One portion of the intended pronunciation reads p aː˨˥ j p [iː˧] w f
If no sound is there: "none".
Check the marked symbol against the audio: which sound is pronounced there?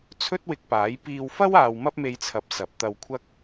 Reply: iː˧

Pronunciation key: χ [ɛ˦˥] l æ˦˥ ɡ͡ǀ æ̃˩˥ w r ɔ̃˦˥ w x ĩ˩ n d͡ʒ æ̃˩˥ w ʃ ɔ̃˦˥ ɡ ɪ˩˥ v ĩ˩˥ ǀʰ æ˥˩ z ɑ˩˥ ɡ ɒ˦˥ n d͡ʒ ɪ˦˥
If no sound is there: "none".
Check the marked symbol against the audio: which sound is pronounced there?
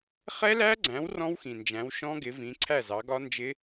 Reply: ɛ˦˥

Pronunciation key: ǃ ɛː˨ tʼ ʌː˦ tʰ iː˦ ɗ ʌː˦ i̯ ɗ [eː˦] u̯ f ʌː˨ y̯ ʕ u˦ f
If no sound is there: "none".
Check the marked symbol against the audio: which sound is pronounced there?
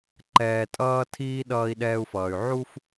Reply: ɛː˦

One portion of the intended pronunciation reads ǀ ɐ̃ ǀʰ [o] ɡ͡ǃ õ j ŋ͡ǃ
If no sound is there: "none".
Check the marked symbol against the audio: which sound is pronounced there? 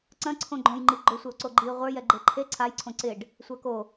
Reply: õ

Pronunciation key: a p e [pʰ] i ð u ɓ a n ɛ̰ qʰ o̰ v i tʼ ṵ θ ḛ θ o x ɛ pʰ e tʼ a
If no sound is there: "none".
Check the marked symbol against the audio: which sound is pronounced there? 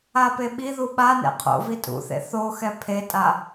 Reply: ɓ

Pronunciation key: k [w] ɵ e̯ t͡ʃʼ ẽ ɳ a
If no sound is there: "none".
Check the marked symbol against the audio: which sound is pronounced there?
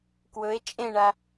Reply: w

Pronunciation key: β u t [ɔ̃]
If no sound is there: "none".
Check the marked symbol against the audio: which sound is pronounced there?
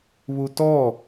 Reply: ɔ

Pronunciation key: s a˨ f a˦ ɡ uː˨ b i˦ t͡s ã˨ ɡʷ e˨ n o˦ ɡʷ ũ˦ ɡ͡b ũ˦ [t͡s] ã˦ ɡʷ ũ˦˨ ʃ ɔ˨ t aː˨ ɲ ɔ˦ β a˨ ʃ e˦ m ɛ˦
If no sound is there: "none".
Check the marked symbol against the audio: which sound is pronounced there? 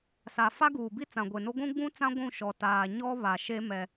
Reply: t͡s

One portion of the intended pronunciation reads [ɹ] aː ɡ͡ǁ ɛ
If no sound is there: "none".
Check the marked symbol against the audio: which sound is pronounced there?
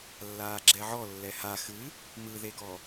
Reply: lː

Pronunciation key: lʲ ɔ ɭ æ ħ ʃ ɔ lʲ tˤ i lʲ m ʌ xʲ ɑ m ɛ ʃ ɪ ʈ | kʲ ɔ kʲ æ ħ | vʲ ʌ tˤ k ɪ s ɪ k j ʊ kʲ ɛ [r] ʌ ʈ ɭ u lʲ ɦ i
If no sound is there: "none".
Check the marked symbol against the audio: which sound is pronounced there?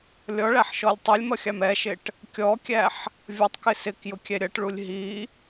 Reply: ɾʲ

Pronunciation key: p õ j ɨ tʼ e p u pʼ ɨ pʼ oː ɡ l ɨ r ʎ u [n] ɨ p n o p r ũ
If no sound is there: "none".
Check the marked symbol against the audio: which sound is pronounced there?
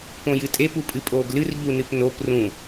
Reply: n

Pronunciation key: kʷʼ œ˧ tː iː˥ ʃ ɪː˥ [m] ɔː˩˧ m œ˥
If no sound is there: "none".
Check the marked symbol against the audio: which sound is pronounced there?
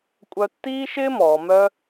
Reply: m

